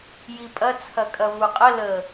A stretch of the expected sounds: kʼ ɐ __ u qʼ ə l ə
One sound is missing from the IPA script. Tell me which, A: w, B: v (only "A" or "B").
B